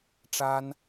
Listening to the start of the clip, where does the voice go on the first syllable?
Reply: high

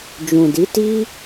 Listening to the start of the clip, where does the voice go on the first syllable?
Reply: low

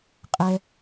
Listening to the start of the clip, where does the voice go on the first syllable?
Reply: high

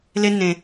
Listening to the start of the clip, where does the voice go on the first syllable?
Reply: high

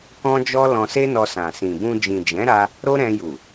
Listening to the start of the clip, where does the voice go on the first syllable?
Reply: high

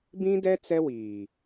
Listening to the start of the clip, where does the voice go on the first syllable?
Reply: high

